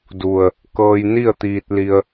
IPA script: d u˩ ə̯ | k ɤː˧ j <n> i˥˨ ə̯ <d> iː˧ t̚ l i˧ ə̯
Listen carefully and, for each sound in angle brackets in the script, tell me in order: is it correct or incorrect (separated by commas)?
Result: correct, incorrect